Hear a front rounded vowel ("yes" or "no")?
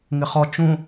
no